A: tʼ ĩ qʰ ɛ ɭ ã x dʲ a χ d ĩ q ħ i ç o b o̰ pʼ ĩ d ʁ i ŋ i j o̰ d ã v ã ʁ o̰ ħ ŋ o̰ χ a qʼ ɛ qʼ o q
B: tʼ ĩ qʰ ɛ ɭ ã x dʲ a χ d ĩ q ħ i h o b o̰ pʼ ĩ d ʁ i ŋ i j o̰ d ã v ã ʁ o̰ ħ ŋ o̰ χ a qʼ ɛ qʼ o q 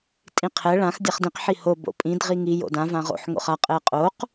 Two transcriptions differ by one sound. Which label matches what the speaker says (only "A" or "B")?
B